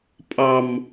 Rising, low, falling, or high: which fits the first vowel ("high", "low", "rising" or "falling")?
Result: high